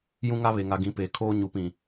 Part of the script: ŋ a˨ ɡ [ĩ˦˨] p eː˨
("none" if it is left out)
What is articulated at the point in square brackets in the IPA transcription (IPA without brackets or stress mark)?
ĩ˨˦